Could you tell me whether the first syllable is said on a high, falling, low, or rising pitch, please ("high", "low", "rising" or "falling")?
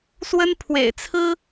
high